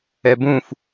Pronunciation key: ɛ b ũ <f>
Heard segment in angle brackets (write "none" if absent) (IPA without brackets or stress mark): f